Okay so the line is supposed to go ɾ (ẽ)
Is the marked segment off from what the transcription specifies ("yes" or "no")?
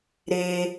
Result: yes